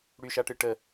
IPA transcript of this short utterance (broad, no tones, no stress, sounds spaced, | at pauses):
ɽ y ʃ a ʈ ɨ ʈ ə